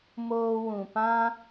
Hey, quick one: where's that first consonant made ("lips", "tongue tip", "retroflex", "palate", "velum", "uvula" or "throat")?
lips